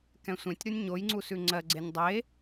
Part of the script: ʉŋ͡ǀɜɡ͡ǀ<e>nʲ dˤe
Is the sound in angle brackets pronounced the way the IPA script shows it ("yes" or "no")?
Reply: yes